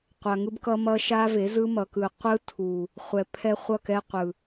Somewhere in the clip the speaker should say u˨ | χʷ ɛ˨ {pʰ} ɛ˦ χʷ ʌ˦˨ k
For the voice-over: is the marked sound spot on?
yes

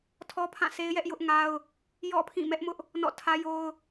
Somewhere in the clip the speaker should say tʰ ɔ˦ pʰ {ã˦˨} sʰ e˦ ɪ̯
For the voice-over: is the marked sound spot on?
yes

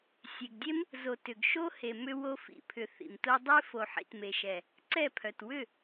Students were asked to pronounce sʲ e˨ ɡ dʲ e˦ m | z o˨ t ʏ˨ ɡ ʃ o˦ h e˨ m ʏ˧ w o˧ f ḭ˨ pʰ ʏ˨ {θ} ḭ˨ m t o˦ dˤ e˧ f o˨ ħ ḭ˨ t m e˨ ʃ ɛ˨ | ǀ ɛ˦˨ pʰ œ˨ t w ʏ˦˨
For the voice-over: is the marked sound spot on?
yes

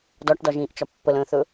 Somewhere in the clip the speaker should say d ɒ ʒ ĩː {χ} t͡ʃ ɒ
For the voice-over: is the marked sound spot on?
no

